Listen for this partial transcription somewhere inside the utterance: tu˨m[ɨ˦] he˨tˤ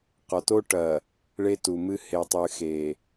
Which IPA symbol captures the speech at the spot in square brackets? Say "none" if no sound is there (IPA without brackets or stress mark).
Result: ɨ˦